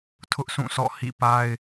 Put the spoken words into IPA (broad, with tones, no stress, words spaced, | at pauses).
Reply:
tʰʊ˦ʔsũ˦˨sɔ̰˦˨ hḭ˦˨pa˦ɪ̯